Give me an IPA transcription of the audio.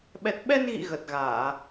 ɓ ɛ˨˩ t̚ ɓ ɛ˧ n ɣ ḭ˧˨ ɣ ə˨˩ t̚ ɣ aː˧˩˨

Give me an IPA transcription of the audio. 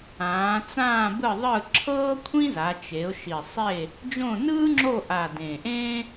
ãː˩˧ t͡s ãː˦˨ b ɯ˦˨ ðˤ ɯ˦˨ ǁʰ ɤː˥ kʷʰ ĩ˥ z a˩˧ t͡ʃ e˩˧ ʊ̯ ʃ i˨˩ sˤ e˦˨ | d͡ʒ õ˦˨ n ɯː˥ ŋ͡ǁ o˦˨ ʔ a˨˩ d ẽ˨˩ ʔ ẽː˥

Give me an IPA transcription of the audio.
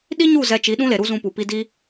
ɗ i˦ ɲ u˦˨ z ɛ˧ t͡ʃ i˨˦ ɗ ũ˦ l e˨ ɾ u˦ z ũ˧ p u˨ p i˧ d iː˦

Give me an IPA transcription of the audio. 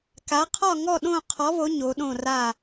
k a˨˦ qʰ ɒ˥˨ ŋ ɔ˥˨ ɗ õ˥˨ qʰ ɔ˨˦ β o˨˦ ɲ o˨˦ ɗ õ˥˨ r a˥˨

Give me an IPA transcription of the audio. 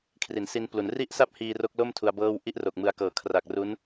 kʰ r i˩˦ n s i˧ n p l u˩˦ n r i˥˩ ʔ s a˥˩ p̚ h iː˧ r o˦˥ k̚ l o˥˩ m tʰ u˧ a̯ b ɤː˥˩ w ʔ i˥˩ ʔ r o˨˩ k̚ m ɯ˧ a̯ k ɤː˨˩ kʰ r a˨˩ k̚ r u˦˥ n

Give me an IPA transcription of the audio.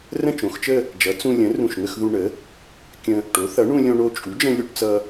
r ə̃˥˧ t͡ʃ õ˩˥ x t͡ʃ ə˥˧ | d͡ʒ ʌ˩˥ t͡s ũ˧ lʲ ə̃˩˥ r ũ˧˩ ʃ ŋ ə˥˧ x ð u˧ ɳ ə˩˥ | kʲ ə̃˧ | ʈ o˩˥ θ ʌ˩˥ ɳ ũ˧ lʲ õ˧ ɳ o˧ t͡ʃʼ u˩˥ d͡ʒ ə̃˧ lʲ u˧ ʈ t͡s ʌ˧

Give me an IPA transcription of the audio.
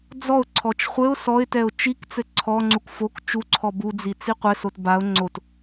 d͡z ɔ ʊ̯ ǀʰ ɔ t͡ʃ χʷ ɘ ʊ̯ s ɔ ɪ̯ t ɛ ʊ̯ t͡ʃ i k t͡s ɘ ǀʰ ɔ ŋ͡ǀ u k f o k t͡ʃ u ǀʰ ɔ b u d͡z i t͡s i qʷ ɘ s o t b a ʊ̯ ŋ͡ǀ o t

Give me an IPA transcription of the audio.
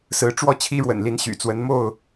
s ɹ̩˨˦ ʈ͡ʂ w ɔ˥˨ t͡ɕʰ i˦ ɻ w ə̰˨˩ n l i˨˦ n ɕ y̰˨˩ t͡s w ə˨˦ n m o˥˨ ʊ̯

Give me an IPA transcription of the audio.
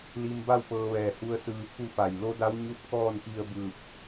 l i˧ m b a˥˨ w p ɤː˧ ʋ ɛː˧˩ h u˧ ə̯ s ɯː˧ pʰ u˥˨ f a˧˩ j l o˧˥ d a˧˥ w ɲ u˧˥ t̚ k ɔː˥˨ n p i˧ ə̯ b ɯː˧˩ p̚

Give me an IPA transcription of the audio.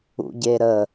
ṵ ɟ e ɾ ə

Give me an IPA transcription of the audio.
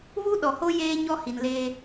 β u˦ ɗ ɔ˨ h o˦ j eː˦ ɲ ɔ˦ h i˨ n l eː˦

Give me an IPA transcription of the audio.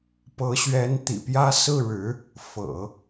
p ɤ˧˥ ɕ ɥ ɛ˧˥ n t̪ ḭ˨˩ p j ä˥ s ɹ̩˥˩ ɻ ɻ̩˧˥ | f ɤ̰˨˩˦

